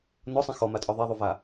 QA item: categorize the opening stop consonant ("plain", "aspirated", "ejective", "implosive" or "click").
ejective